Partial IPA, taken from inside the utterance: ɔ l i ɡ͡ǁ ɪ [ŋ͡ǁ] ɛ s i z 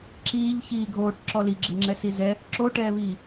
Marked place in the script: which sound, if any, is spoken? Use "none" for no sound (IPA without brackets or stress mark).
ŋ͡ǁ